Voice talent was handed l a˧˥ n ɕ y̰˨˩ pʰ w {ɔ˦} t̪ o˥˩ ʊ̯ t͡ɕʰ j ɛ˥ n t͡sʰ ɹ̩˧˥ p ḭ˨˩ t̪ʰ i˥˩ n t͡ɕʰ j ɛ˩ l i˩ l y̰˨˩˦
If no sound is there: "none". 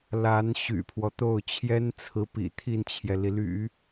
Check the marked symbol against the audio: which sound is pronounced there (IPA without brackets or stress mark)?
ɔ˦